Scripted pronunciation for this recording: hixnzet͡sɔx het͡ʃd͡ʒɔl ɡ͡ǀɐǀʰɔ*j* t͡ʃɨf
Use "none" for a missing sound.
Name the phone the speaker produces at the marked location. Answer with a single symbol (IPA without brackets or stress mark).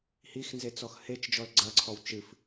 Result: w